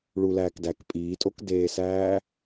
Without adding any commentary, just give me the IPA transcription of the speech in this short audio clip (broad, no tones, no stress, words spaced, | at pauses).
ɭulæːkdæk pʼiːtʼokdeːsæː